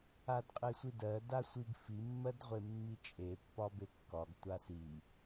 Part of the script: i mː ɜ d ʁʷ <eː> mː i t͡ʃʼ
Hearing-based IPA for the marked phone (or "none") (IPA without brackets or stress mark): e